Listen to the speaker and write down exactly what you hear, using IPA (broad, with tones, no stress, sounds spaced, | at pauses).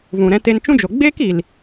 v ũ˨ ɾ ɛ̃˧ t e˧ n t͡ʃ ũ˦ d͡ʒ o˨ ɡ͡b eː˦ k i˨ l